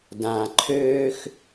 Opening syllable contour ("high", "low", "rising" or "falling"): low